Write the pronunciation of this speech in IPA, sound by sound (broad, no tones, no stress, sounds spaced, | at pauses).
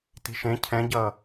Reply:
t i̤ ʃ ẽ cʰ ɛ̃ ɟ ʌː